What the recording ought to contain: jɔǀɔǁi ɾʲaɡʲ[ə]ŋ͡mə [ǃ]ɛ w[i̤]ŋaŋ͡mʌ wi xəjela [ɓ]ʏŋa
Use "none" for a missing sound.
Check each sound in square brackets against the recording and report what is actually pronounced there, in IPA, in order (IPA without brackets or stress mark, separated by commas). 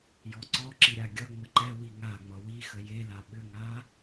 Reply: ʌ, ǃ, i, ɓ